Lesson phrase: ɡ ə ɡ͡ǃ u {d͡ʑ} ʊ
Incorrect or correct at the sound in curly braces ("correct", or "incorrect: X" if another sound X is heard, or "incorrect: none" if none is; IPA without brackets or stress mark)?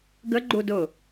incorrect: d